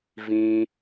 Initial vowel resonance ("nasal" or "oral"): nasal